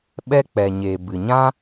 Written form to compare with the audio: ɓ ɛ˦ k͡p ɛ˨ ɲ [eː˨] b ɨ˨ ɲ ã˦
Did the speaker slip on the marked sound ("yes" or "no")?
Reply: no